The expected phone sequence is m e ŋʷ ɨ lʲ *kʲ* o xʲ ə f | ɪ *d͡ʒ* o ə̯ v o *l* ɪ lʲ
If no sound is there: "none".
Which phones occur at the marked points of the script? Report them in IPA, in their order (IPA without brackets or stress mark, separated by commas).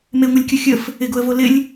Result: kʲ, ɡ, l